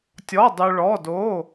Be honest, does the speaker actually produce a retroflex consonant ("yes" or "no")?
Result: yes